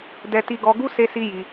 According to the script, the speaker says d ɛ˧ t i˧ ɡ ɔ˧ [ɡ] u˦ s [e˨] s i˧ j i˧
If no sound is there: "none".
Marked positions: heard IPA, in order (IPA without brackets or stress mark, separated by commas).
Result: ɡ, e˧